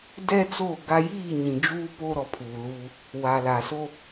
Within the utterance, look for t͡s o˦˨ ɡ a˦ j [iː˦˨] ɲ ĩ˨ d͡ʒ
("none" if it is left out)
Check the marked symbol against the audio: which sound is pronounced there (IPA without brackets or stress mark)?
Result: iː˦˨